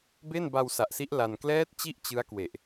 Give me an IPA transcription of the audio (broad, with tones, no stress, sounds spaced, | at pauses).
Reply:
b e˥˩ n b a˧ w s a˨˩ ʔ s i˦˥ ʔ l a˧ n k l ɛː˦˥ t̚ t͡ɕ i˥˩ ʔ t͡ɕ ɯ˦˥ a̯ k w e˨˩ ʔ